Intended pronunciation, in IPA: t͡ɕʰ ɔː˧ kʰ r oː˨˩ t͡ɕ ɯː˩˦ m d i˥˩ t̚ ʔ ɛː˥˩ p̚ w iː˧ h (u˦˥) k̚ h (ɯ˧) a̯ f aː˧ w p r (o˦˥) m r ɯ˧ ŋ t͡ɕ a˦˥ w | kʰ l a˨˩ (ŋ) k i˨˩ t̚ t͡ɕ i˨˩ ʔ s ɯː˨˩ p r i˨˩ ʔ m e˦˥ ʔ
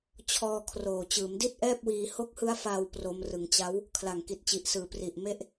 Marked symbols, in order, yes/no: no, no, yes, yes

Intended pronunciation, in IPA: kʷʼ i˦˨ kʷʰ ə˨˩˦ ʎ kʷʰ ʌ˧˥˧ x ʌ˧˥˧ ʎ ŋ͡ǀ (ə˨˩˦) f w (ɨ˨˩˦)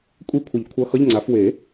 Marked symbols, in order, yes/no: no, no

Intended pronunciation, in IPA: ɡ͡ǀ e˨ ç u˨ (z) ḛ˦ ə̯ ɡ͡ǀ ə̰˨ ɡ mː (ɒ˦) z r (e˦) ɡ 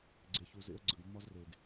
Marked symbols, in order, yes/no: yes, yes, no

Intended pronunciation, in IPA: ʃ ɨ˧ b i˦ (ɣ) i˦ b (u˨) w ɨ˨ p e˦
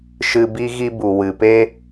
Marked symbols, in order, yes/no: yes, yes

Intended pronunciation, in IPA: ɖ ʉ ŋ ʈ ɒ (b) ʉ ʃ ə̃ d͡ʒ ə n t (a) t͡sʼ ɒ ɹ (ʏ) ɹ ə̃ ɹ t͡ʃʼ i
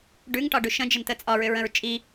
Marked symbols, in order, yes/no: no, no, yes

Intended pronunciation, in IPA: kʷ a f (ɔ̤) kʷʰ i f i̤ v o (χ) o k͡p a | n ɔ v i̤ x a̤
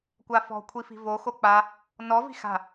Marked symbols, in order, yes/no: yes, no

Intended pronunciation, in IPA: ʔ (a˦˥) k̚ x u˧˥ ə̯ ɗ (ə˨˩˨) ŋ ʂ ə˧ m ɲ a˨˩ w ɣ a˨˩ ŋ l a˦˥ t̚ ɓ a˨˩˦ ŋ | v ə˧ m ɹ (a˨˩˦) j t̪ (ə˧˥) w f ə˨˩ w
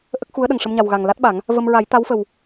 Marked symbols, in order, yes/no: no, no, yes, no

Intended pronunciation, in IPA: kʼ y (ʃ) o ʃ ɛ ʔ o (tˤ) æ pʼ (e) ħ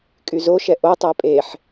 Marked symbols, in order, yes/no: no, yes, yes

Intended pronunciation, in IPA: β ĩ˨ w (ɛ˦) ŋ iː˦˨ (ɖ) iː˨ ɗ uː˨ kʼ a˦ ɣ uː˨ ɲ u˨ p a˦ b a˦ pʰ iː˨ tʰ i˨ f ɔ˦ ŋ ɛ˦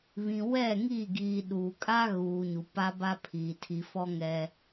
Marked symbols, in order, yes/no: no, no

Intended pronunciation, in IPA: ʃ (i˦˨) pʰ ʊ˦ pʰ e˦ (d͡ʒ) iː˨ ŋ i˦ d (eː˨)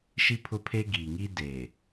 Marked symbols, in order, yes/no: no, no, yes

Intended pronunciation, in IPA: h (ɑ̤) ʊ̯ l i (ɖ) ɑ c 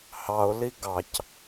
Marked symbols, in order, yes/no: no, no

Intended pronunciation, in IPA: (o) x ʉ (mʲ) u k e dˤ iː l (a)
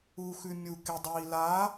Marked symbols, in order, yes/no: no, yes, yes

